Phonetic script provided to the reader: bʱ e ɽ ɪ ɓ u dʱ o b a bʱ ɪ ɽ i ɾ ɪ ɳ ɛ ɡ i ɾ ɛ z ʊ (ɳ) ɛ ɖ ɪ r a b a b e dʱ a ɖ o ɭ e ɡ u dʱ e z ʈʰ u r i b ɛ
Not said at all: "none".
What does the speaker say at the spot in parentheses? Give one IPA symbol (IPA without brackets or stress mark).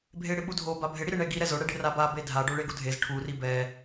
ɽ